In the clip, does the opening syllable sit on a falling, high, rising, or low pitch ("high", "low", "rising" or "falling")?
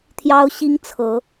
high